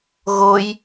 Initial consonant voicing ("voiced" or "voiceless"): voiced